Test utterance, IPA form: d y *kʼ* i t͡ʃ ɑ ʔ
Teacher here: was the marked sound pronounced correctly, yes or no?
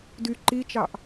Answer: no